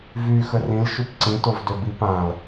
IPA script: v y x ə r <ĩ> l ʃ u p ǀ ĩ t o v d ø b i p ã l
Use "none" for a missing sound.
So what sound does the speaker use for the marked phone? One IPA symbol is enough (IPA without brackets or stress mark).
ĩ